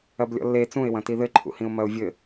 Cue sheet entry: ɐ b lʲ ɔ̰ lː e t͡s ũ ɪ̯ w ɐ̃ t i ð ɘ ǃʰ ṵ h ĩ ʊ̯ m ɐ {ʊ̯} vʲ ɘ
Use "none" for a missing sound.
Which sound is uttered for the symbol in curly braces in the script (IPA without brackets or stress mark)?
ʊ̯